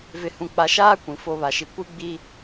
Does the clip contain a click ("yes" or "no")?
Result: no